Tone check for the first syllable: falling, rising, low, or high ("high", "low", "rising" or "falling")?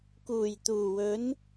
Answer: low